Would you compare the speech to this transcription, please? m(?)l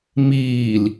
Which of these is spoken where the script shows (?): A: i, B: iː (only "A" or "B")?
B